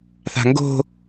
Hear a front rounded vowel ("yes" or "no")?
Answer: no